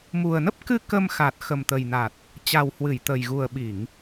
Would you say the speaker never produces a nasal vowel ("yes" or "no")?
yes